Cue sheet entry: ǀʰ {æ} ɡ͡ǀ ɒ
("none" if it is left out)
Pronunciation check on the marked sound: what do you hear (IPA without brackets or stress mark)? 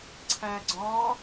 æ